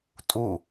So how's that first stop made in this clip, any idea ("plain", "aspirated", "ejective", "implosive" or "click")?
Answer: ejective